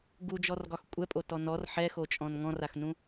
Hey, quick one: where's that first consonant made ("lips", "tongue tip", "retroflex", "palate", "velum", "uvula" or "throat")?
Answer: velum